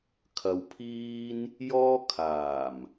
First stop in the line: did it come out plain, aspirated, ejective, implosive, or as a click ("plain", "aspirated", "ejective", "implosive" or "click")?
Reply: aspirated